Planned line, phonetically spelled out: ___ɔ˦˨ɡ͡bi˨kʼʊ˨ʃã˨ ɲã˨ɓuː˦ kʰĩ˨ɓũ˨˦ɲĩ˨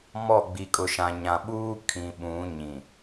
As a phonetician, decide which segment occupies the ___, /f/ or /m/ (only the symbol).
m